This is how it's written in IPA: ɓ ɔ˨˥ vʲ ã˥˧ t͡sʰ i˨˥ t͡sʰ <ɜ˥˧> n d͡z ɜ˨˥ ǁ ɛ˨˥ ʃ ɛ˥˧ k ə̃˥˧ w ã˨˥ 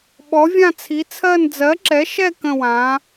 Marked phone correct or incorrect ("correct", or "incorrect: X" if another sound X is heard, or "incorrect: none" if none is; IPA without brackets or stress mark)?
correct